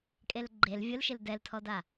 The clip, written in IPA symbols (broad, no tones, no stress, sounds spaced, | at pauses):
kʼ e l ɡ͡ǃ e l vʲ ʊ l ʃ ɪ l d ɛ l tʰ ɔ d a